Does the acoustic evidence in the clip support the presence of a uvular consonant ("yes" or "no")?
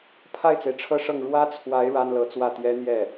no